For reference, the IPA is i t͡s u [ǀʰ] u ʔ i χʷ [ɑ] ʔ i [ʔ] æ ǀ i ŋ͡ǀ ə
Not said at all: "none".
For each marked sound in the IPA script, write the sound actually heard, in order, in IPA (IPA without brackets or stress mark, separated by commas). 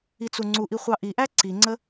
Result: ŋ͡ǀ, ɑ, ʔ